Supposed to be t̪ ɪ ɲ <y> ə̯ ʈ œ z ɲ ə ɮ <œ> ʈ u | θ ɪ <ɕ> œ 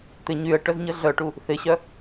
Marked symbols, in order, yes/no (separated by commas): yes, yes, yes